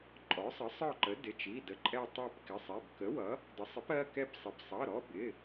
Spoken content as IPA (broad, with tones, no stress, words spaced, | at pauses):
ǃʼɔ˩˥sˤʌ˩˥sˤ ɒ˦˨ǃə˩˥ dɪ˩˧˩t͡ʃi˩˧˩ də˩˥ǃʼɛ˦˨ tˤɜ˦˨pkɪ˩˧˩sˤɛ˩˧˩b kə˩˥wʌ˩˥ | də˩˥sˤɪ˩˥p ɜ˩˧˩kɛ˦˨psˤɪ˩˧˩b sˤʌ˩˧˩ɾɔ˩˧˩bɪ˩˧˩